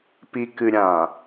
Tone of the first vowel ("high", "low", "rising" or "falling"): low